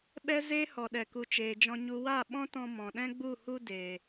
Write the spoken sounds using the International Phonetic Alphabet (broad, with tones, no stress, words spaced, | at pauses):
ɓɛ˦ zeː˦hɔ˨ɗɛ˨ku˨ t͡ʃeː˨d͡ʒɔ̃˧ɲu˧ wa˦˨ɓɔ̃˦tɔ̃˧ mɔ̃˨ɗɛ̃˦ɡ͡bu˦˨ hu˧ deː˨